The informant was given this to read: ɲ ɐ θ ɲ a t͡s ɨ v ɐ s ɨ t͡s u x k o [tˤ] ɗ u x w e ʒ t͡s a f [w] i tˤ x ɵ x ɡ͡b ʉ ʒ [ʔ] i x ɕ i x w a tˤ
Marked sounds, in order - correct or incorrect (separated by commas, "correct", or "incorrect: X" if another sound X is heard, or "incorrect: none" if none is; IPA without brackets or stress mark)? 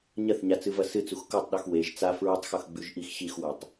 correct, incorrect: ɹ, correct